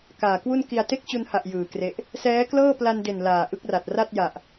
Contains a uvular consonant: no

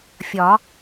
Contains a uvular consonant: no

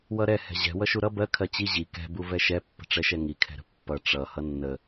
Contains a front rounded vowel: no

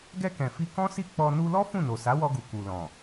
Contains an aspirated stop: no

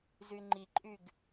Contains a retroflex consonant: no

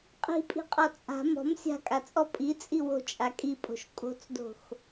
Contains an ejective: yes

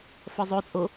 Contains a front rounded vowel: no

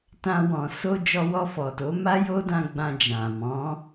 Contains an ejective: no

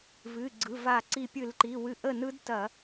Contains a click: yes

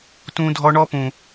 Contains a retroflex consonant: yes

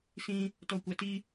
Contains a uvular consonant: no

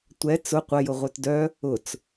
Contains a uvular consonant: yes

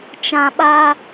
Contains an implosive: yes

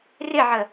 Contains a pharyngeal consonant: yes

